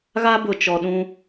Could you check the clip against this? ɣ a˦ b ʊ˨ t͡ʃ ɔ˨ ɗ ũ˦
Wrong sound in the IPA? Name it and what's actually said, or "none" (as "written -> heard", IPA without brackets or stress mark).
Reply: none